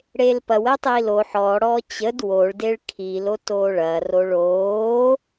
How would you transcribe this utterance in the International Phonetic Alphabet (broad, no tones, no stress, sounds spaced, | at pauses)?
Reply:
ɽ eː l p ɐ w ə u̯ tˤ iː l o ħ ɔː ɽ ɔː t͡ɕ ə d w o ɭ d e ɭ kʰ iː l o t oː ɭ ɐ r o ɭ oː